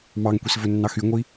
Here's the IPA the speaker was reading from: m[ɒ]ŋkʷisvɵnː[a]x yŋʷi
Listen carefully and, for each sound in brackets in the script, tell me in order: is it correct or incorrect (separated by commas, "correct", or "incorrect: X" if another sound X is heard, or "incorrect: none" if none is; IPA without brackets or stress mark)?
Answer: incorrect: ɑ, incorrect: ɑ